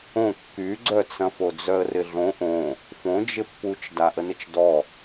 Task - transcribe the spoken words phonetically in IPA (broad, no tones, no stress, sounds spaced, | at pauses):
õ kː y ɡ͡ǀ œ t͡s ɐ̃ f o d͡z œ ə̯ r ɪ ɮ õ ʔ õ | f õ d͡ʒ ɪ pː u t͡ʃ d a ʔ ə n ɪ t͡ʃ d ɔ